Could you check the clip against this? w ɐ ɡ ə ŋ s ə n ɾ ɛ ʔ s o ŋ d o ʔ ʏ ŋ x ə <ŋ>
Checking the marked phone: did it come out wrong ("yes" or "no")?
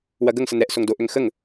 no